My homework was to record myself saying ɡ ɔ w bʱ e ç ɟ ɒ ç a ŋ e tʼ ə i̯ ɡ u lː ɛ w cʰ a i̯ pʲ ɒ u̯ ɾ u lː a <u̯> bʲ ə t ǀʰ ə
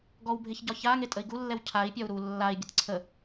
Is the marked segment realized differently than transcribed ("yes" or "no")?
yes